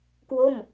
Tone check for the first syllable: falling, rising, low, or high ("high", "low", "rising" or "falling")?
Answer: falling